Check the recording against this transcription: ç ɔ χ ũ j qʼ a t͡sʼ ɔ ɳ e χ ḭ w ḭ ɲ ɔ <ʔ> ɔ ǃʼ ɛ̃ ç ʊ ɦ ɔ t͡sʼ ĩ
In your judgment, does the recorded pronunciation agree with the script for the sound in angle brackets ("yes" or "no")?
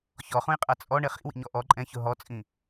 yes